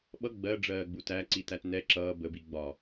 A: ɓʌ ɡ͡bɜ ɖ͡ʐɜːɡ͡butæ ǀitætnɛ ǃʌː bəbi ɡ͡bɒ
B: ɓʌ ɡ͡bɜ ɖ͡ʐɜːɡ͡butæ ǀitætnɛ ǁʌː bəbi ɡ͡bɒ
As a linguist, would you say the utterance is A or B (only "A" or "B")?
B